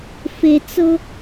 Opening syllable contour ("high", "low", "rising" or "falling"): high